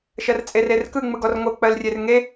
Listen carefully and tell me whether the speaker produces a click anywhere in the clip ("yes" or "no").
no